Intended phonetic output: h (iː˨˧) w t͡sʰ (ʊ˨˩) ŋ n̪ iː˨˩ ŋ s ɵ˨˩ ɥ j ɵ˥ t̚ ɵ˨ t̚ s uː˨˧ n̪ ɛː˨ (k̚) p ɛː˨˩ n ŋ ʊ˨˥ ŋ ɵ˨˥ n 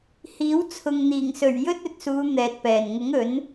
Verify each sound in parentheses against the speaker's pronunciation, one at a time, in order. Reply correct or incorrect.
incorrect: iː˨˥, incorrect: ʊ˨, incorrect: t̚

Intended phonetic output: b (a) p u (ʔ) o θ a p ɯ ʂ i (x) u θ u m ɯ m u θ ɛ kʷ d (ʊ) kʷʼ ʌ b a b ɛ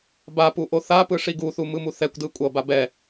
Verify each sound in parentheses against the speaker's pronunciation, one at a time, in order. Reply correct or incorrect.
correct, correct, incorrect: ɡ, incorrect: ɯ

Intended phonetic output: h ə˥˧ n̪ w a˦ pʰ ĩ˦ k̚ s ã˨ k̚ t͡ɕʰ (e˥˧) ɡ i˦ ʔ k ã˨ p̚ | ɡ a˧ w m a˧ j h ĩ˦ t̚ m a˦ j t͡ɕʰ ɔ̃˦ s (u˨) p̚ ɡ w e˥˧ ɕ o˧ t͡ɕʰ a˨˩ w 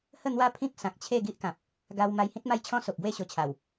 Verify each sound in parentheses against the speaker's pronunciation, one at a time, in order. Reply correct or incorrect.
correct, incorrect: o˨

